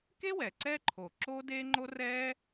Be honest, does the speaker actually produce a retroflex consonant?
no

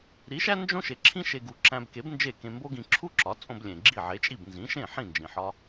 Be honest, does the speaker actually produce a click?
yes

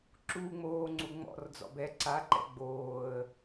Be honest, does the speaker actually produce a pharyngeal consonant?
no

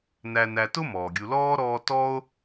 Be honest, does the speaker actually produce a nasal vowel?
no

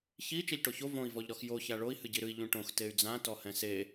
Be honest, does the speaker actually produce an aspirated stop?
no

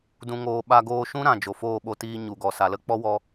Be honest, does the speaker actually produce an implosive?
yes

